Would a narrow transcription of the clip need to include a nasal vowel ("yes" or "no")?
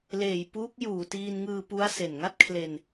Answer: no